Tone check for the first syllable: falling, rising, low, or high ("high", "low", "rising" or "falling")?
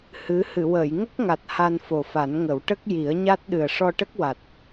rising